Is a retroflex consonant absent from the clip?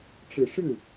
no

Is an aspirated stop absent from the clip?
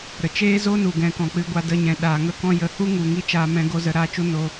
yes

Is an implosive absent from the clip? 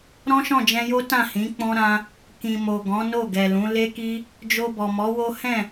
yes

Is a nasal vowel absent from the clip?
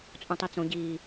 no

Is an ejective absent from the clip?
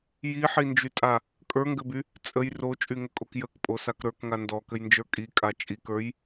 no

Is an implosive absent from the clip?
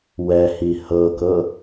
yes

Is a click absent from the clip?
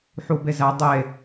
yes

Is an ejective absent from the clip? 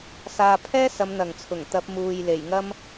yes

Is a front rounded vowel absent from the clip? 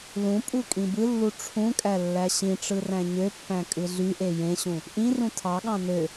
no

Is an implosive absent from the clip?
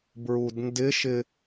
yes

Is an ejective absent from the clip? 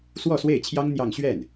yes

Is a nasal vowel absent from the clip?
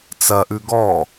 yes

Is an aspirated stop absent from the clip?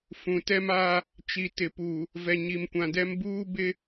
yes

